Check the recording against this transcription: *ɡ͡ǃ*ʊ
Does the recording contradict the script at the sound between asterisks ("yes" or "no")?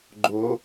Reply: no